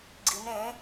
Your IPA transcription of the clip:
ɡ͡ǀ i m ɾ ẽ

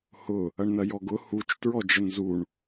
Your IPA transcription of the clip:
h ʊ | ɐ ɳ n ɐ j ɔ ɡ ʊ h u t͡ʃ t ɹ ɔ d͡ʒ ə n z u ɳ

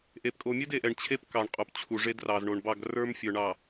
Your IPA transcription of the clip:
ʔ e˨ p kʼ o˨ mʲ ɛ˦ d e˨ ʔ ɛ˨ ɳ t͡ɕʰ e˦ p k ɑ˨ ɳ qʼ o˨ p t͡ɕʰ u˨ ʐ e˦ d r ɑ˨ z ɳ o˨ ɳ b ɑ˦˨ ɡ r ə˞˦ m fʲ ə˞˨ ɳ ɑ˨

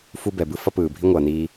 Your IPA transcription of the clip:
f u˦ b ɛ˨ b ɯ˦ f ʌ˦ p ɯː˨ bʱ i˦ ŋʷ ʌː˨ n iː˦

